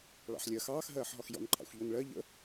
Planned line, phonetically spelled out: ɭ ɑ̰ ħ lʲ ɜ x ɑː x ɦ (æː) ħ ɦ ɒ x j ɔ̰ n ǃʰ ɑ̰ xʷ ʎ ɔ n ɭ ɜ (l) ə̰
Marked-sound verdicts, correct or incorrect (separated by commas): incorrect, incorrect